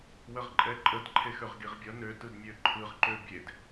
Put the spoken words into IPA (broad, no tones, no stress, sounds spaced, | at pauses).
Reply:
w ə ʁ ǃʼ ɛ ǃʼ ə d ǃʰ e x ø ʁ ɡ i ʁ bʲ ʌ n ø t ɯ d mʲ ø ǃʰ ɯ ʁ ǃ ø bʲ e d